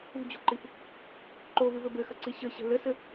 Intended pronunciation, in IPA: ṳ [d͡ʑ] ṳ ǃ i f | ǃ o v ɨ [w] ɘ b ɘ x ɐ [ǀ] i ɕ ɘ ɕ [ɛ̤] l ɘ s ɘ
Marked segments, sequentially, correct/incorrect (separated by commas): correct, incorrect, correct, correct